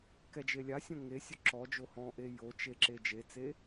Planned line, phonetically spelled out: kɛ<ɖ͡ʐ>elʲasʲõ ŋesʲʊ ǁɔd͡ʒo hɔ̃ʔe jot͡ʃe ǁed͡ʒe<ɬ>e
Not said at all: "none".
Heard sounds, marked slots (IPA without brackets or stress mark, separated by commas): d͡ʒ, t͡s